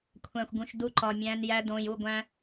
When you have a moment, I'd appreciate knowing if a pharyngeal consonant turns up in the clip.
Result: no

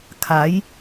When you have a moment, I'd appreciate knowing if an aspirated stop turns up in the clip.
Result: yes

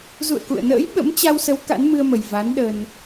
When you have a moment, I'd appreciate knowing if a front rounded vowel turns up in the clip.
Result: no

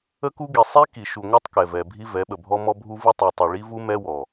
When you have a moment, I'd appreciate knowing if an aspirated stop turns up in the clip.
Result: no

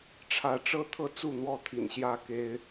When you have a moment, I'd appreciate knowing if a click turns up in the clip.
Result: no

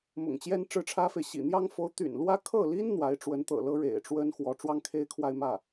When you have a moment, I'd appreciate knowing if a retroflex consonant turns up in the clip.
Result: yes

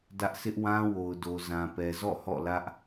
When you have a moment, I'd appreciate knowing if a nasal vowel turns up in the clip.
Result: yes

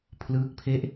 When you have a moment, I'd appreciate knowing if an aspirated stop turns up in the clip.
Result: yes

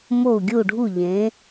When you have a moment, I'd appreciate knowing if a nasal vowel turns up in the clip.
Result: yes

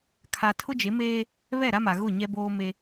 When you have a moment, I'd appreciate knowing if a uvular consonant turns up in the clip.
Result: no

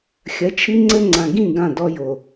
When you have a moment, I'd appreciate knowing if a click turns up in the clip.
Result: yes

